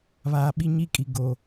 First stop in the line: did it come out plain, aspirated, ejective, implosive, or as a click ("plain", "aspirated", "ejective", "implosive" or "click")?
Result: implosive